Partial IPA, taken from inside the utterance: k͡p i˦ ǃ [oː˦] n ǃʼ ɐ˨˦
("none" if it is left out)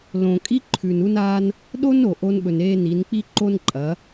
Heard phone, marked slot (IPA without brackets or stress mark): o˦